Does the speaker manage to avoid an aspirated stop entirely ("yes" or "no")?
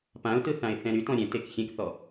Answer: yes